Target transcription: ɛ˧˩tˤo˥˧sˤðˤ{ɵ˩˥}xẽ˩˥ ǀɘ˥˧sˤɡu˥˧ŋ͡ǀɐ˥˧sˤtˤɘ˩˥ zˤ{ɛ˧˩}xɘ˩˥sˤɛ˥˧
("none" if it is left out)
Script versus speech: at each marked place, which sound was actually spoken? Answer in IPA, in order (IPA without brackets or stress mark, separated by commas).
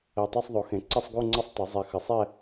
o˩˥, ɛ˧˩